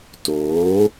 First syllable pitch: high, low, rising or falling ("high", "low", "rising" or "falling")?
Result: rising